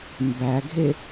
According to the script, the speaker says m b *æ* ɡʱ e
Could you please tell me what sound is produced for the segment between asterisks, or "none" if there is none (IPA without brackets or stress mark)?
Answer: æ